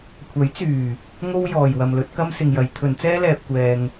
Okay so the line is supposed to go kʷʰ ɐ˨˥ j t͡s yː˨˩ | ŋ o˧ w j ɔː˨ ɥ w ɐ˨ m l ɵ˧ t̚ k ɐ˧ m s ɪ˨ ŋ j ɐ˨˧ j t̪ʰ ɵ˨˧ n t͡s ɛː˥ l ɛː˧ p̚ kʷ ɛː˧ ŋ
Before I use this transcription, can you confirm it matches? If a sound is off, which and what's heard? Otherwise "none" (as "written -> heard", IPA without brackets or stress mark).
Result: ɥ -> j